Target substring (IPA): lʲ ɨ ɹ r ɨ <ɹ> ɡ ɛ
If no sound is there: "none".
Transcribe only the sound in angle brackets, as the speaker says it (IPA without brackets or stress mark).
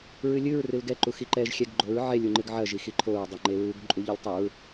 l